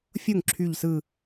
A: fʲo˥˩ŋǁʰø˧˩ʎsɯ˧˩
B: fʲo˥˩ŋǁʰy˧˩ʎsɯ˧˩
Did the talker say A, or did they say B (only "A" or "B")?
B